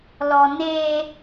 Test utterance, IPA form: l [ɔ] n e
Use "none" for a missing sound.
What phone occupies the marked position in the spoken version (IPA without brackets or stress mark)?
ɔ